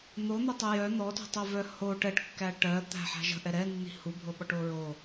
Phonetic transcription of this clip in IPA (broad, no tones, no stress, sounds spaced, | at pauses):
n̪ o n̪ o tˤ ɵ j œ n̪ ɔ t ṳ tˤ œ v œ h o ʈ ɛ ʈ kː æ ʈ ɜ t̪ æ̤ ħ æ̤ ʒ ə̤ ʔ ɛ ɾ ɛ nː i̤ h u bʱ o ɓ ɔ ʈ o ɹ o